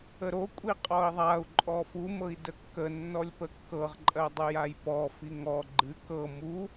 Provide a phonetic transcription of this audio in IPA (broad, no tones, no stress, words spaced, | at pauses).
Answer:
əɾokʷʼi qʼɔi̯ðˤau̯ ǃʼɔfumɤi̯ dəkːə nːɔlʲpəkːɤʁ ǃʼɜdˤɨjajpɔ fiŋɔ ɡ͡ǃɨ kɤ mu